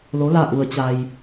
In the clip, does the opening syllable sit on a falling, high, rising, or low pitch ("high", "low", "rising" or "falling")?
rising